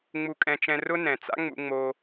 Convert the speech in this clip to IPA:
ŋ͡m u˧ kʼ ɛ̃˧ t͡ʃ ɛ̃˧ r ʊ˦ n ɛ̃˨ t͡s a̰˦ ŋ͡m ṵ˧ ŋ͡m o˧

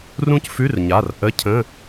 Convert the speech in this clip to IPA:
r ũ˦˥ c f ʉ˧˥˧ r ɲ a˩˧˩ r ʔ ə˧˥˧ cʰ ə̃˧˥˧

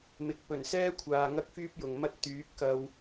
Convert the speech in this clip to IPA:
m ɪ˨ k̚ p ɵ˨˩ n s ɛː˥ kʷʰ aː˨ ŋ ɐ˥ k̚ f yː˥ p̚ j ʊ˨ ŋ m ɐ˥ t̚ t̪ yː˨˥ p̚ k ɐ˧ w

